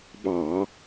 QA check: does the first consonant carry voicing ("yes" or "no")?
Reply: yes